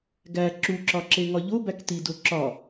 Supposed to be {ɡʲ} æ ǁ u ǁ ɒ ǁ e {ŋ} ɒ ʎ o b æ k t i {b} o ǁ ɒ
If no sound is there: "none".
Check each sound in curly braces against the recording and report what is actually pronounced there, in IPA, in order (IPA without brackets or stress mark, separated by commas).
ɡ, ŋ, d